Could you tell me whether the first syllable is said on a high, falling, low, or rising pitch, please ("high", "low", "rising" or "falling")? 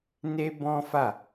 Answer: high